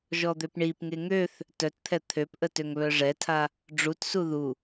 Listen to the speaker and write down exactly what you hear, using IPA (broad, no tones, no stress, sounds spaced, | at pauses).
ʒ ɔ d̪ ø p ɳ i p ŋ e ŋ ø θ | t œ t t̪ʰ ɛ t̪ʰ ø p ʔ ə t ø ŋ β œ ʐ ɛ tʰ a | ɖ͡ʐ u t s u ð u